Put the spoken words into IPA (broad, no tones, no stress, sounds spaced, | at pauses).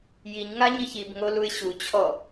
j i ɲ ŋ a ɲ i ç i b ŋ o l u ɪ̯ ɕ u t͡ɕʰ ɔ